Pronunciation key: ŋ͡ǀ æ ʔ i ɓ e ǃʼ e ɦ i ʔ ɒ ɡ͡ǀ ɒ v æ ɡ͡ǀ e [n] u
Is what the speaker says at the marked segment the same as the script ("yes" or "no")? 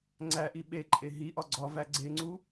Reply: no